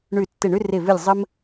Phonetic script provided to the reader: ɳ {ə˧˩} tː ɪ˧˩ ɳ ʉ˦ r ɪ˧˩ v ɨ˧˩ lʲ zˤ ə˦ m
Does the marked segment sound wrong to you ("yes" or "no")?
yes